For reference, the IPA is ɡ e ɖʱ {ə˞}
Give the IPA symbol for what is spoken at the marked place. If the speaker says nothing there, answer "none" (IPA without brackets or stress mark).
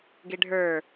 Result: ə˞